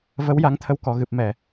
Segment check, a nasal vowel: absent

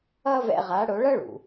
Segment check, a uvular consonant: present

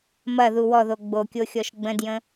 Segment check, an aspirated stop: absent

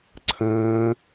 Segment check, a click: present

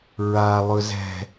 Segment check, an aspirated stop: absent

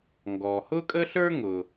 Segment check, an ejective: present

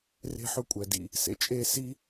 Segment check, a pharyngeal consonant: present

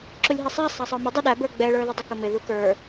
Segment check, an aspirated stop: absent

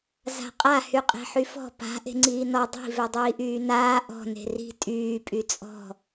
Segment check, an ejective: present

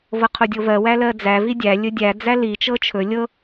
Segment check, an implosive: absent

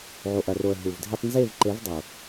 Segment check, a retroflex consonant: absent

